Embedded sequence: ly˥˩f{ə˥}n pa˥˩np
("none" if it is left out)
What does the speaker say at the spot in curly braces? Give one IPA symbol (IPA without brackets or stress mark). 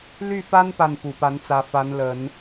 a˥